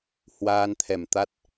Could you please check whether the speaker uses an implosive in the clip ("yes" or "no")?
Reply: no